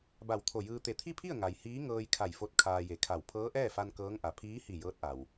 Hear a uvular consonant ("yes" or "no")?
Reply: no